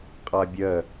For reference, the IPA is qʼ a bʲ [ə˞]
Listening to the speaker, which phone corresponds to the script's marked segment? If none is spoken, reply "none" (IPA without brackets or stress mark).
ɜ